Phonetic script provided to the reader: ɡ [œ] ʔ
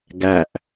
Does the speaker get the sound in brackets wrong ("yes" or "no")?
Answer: yes